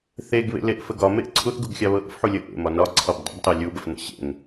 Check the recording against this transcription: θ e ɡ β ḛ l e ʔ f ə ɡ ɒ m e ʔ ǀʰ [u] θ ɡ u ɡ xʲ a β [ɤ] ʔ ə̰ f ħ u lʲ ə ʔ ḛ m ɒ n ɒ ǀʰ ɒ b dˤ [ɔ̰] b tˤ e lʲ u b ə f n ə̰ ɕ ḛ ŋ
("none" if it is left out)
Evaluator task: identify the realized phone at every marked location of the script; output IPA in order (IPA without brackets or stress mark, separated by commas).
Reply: u, ɤ, ə̰